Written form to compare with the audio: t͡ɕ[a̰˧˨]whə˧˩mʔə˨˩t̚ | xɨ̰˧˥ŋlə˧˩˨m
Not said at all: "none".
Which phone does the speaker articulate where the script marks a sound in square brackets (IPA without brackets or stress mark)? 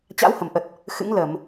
a̰˧˥